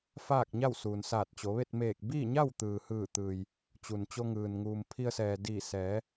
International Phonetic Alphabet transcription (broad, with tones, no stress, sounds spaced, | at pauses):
f aː˥˨ k̚ ɲ a˥˨ w s uː˩ n s aː˧˩ t̚ t͡ɕ o˩˧ ʋ e˥˨ t̚ m eː˧˩ k̚ b iː˥˨ ɲ a˥˨ w t̪ ɯː˩ h ɯː˧˩ t̪ ɯː˩ j | t͡ɕ u˩ n t͡ɕ o˧ ŋ ɯː˩ n ŋ uː˩ m pʰ i˧ ə̯ s ɛː˩ d iː˧˩ s ɛː˩˧